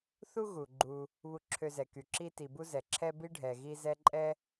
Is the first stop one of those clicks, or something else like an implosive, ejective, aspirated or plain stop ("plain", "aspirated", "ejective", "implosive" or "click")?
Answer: click